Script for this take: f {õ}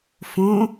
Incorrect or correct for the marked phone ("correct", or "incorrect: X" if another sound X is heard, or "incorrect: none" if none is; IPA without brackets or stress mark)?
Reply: correct